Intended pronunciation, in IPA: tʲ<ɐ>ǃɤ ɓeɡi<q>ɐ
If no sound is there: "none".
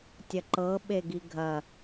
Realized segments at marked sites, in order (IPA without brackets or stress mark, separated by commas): ɐ, ɡʱ